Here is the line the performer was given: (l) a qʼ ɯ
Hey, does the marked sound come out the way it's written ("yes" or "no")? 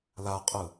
yes